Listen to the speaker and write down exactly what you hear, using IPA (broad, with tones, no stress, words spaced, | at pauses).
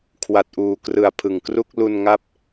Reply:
kʰwa˨˩t̚ʔuː˨˩krɯ˨˩a̯ pʰɯ˨˩ŋkru˥˩k̚ lu˧nŋa˦˥p̚